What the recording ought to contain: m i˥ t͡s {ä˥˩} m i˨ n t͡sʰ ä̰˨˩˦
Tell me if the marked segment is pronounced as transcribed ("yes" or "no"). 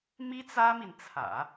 no